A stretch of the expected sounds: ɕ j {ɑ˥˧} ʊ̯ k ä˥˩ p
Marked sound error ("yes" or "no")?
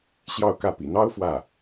no